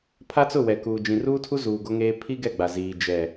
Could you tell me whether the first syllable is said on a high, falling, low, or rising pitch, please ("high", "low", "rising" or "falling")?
high